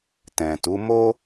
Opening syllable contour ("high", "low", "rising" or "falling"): low